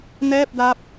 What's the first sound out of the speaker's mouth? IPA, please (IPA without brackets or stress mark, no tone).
n